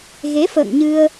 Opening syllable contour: rising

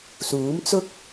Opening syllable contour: rising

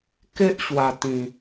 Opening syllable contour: high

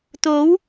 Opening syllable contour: rising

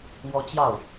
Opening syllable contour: high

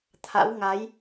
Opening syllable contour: rising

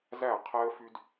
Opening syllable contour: falling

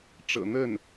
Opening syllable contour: low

